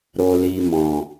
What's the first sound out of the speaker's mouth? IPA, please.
ɾ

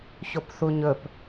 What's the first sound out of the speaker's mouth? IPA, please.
ç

